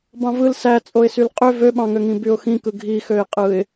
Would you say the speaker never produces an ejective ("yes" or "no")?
no